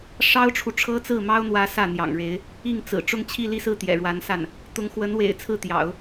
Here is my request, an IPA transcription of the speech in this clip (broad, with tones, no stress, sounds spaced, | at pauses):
ʂ ɑ˥ ʊ̯ ʈ͡ʂʰ u˨ ʈ͡ʂʰ ɤ˥ t͡s ɹ̩˥˩ m ɑ˥ ʊ̯ n̪ w ä˧˥ s ä˥˩ n̪ j ɑ̰˨˩ ŋ ɻ e˧˥ ɪ̯ | i˥˩ ŋ t͡s ɹ̩˨˩ ʈ͡ʂ ʊ˥˧ ŋ t͡ɕʰ i˥˧ l i˥˧ s ɹ̩˥˩ t̪ j ɛ̰˨˩ ɻ w a˧˥ n s a˥˩ n | t̪ ʊ˧˥ ŋ x w ə˧˥ n w ḛ˨˩ ɪ̯ t͡sʰ ɹ̩˥˩ t̪ j ɑ̰˨˩˦ ʊ̯